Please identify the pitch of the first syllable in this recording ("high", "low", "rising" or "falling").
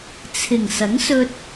low